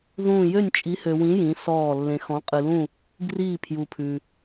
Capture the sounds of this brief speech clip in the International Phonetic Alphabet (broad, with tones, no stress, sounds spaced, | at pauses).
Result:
ð ũː˥˧ j ø˥˧ nʲ t͡ʃʼ i˧˥ h ø˧ w ĩ˧˥ j ĩ˧˥ s ɔː˥˧ lː ẽ˧ x ɔ̃˧˥ qʼ ɨ˧ l ũ˥˧ | ɡ r iː˥˧ pʰ j u˧ pʰ ʉ˧